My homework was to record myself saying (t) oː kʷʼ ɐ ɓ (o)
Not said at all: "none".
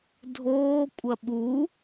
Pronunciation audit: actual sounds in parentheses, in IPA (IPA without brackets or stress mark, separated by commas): dʱ, u